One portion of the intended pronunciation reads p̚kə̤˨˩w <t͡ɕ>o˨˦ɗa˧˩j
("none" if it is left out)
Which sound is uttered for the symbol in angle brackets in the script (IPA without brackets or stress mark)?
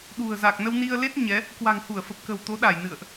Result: t̪